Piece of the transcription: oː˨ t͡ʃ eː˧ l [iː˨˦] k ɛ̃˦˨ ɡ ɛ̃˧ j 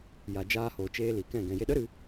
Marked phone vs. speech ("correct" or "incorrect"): incorrect